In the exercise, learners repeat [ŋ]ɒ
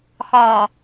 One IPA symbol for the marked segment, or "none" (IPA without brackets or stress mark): x